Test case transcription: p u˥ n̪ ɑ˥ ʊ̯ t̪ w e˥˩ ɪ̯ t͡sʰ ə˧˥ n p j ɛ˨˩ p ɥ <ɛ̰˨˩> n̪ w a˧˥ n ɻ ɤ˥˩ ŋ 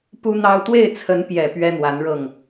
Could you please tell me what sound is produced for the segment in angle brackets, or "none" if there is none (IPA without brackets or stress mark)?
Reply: ɛ˥